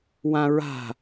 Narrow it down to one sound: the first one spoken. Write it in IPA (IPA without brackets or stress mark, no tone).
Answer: w